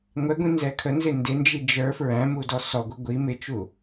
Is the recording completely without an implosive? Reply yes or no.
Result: yes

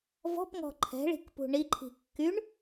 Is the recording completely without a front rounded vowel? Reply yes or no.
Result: no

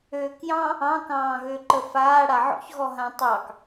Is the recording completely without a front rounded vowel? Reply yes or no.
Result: no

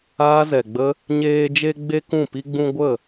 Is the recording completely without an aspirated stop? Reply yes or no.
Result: yes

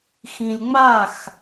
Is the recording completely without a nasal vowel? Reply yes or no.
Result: no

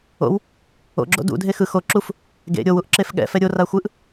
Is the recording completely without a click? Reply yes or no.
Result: no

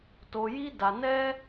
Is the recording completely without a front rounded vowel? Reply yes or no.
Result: yes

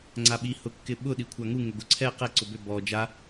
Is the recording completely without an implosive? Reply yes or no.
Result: no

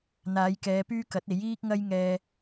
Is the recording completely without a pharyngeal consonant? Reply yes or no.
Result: yes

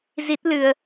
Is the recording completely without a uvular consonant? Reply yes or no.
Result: yes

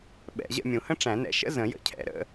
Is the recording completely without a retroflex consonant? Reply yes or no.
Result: no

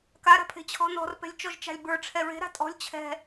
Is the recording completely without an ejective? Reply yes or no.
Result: no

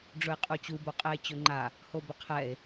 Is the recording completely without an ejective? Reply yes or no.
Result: no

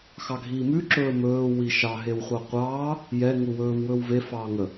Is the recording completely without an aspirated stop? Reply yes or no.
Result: yes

